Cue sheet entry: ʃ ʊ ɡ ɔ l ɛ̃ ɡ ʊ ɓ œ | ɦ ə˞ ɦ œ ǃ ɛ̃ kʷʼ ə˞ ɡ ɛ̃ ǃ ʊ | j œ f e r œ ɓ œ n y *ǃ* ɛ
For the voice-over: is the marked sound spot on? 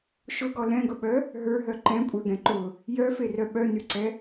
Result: no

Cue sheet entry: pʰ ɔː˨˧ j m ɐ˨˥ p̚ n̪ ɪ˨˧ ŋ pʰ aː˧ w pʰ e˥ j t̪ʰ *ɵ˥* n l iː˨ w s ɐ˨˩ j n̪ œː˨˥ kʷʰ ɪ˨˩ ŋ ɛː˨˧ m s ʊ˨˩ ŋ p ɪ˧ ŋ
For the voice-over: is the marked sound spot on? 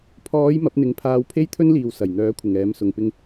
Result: yes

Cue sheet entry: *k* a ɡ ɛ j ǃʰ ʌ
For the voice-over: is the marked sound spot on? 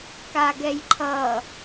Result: yes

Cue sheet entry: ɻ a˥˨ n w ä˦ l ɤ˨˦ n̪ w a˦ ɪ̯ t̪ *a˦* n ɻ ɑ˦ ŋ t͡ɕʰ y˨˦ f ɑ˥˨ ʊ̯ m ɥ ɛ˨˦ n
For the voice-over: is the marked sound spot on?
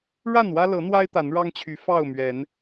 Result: no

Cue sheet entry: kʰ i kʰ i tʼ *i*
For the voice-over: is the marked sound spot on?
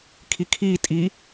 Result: yes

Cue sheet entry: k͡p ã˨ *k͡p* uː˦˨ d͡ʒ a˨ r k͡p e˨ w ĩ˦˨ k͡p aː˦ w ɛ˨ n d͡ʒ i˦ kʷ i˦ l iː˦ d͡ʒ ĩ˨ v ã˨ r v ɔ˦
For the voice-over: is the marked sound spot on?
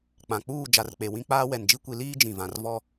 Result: yes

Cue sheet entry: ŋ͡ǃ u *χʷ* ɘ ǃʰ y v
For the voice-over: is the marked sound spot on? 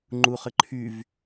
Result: no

